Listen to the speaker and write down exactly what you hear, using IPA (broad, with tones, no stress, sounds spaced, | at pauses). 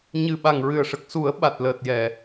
ɲ ɨ˨˩ ɓ a˨˩ ŋ ɹ ɨ˨˩ ə̯ ʂ ə˨˩ k̚ s u˨˩˦ ə̯ ɓ a˨˩ t̚ l əː˨˩ t̚ j ɛ˨˩˨